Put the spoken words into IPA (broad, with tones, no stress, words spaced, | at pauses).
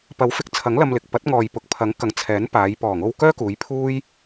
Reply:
pɐ˨˥wfɪ˨˥k̚ t͡sʰɐ˨˥ŋlɐ˧mlɪ˨k̚pɐ˨˥t̚ ŋɔː˨jpʊ˨k̚pʰɐ˨˥ŋkɐ˨˧ŋ t͡sʰɛː˨˥npaː˨˧j pɔː˨˩ŋo˧w kœː˥kuː˨˧j pʰuː˥j